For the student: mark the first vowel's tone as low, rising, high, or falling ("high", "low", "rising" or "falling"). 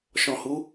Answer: low